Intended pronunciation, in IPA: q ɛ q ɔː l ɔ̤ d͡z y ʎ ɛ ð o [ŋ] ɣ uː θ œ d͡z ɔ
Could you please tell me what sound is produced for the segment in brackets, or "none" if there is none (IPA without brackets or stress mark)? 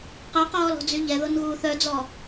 n